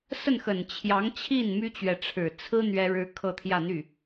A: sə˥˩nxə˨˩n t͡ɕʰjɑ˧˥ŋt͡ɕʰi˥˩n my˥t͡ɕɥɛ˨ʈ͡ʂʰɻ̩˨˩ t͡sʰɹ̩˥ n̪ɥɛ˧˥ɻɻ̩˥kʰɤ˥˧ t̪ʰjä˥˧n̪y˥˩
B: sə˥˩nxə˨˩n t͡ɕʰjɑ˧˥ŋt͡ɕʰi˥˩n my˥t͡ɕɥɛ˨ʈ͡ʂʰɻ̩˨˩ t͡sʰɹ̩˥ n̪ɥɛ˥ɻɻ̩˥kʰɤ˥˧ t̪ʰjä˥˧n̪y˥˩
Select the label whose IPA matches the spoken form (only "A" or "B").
B